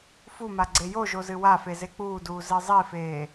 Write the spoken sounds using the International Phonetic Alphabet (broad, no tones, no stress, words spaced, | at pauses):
fuma ɡ͡ǀejoʒo zɨwafe zek͡puːduː zezˤifeː